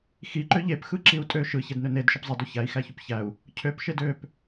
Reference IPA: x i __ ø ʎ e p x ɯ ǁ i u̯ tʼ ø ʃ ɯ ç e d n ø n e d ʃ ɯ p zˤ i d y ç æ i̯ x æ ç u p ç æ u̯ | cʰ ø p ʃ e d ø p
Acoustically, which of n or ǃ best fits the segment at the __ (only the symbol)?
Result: ǃ